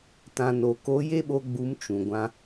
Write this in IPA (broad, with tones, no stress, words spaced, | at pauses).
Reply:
tã˨no˨ko˨˦ je˦ɓo˧ɡ͡bu˨˦m t͡ʃũ˨ɡʷã˧